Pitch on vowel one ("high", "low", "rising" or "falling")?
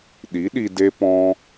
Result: rising